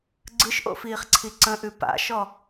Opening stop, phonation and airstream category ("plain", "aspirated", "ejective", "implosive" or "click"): click